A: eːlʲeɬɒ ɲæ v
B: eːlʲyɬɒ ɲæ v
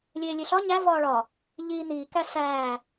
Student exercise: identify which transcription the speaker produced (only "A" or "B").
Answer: A